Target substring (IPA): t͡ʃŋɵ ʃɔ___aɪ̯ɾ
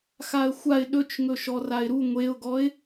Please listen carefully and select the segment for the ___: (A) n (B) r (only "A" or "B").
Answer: B